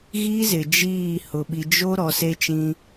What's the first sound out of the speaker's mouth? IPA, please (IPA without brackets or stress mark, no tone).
ɣ